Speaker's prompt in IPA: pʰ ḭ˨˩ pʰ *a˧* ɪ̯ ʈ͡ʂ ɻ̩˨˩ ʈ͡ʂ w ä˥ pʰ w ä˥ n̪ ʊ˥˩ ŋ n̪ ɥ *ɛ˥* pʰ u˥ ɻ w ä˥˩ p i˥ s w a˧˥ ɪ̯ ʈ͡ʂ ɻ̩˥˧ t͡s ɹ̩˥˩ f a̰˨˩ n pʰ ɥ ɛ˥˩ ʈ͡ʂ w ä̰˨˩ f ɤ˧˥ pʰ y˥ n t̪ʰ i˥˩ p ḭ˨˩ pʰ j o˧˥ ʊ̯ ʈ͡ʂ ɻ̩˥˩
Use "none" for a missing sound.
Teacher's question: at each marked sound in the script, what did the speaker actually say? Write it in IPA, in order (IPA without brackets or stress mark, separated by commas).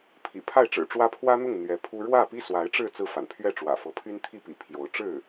a˥˩, ɛ˧˥